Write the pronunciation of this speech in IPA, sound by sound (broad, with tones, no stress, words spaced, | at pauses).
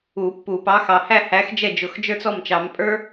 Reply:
u˨˩˦pːu˨˩˦ pɑ˨˥xɑ˨hæ˥˧hæ˨˥x d͡ʒɛ˥˩d͡ʒʊ˨˩˦xd͡ʒə˞˥t͡s ɔ˥˩mt͡ʃɑ˨˩˦m pʼə˞˥